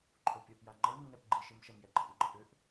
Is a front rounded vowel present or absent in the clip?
present